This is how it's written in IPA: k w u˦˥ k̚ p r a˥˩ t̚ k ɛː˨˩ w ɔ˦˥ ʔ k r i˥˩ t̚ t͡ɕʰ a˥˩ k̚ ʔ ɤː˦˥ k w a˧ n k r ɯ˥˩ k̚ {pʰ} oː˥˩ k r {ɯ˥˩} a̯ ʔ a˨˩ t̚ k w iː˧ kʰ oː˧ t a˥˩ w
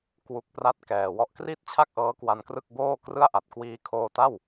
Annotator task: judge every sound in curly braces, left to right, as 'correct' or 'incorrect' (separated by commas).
incorrect, correct